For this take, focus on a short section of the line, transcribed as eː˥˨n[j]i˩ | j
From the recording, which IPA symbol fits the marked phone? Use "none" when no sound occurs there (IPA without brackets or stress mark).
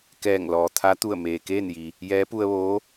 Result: j